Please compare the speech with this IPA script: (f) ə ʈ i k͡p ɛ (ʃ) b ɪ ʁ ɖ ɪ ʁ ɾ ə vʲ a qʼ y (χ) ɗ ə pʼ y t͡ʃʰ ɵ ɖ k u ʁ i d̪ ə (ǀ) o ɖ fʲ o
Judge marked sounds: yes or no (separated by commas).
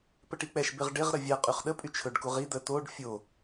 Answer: no, yes, yes, no